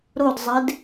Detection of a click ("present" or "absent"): absent